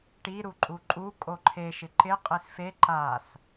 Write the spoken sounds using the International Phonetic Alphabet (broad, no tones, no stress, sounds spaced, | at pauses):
ʈ i ɾ u ǃʼ u ǃʼ u kʼ o ǃʰ e ʃ ɪ ǃ ɪ qʼ e s f e ǃ a s